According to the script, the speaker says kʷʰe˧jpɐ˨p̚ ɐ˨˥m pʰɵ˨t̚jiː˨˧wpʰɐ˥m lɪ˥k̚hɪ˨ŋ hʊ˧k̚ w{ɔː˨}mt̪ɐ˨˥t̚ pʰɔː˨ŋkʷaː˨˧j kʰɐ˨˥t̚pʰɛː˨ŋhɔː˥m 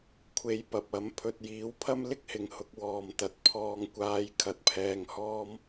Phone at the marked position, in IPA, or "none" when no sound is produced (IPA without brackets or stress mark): ɔː˨